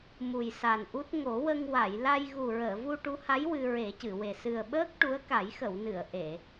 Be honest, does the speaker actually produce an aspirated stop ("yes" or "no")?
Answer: no